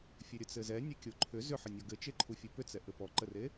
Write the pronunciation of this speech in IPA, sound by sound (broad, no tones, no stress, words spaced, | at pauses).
fʲɘɾʲət͡sɘzɛ nʲɛkʲoǃʰʏ zʏħɘnʲɔ ɡɘt͡ʃeǃʰu fʲupʏt͡sɛ ʔɘpɔǃəre